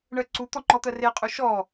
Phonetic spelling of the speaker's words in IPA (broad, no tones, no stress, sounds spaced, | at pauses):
ɳ ɜ ǀ u t̪ ɔ ŋ͡ǃ ɔ t̪ ɜ r e qʼ u ʃ ɔ